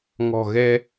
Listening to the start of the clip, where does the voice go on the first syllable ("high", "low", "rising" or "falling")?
low